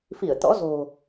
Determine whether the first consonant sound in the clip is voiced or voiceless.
voiceless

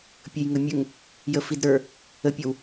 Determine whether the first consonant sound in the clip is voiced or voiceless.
voiceless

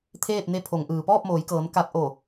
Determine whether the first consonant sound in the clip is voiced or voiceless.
voiceless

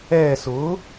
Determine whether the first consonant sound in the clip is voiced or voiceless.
voiceless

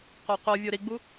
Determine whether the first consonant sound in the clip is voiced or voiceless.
voiceless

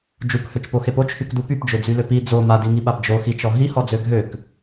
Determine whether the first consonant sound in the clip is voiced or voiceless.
voiced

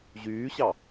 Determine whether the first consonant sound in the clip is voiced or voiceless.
voiced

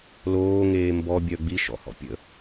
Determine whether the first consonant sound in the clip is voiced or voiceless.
voiced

